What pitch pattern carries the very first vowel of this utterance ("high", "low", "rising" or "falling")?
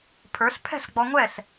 rising